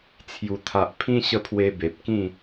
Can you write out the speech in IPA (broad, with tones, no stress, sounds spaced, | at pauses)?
t͡sʰ j u˨˩ t̪ʰ a˨ ʔ pʰ ĩ˦ ɕ ə˦ pʰ w e˧ b e˨ p̚ k ĩ˥˧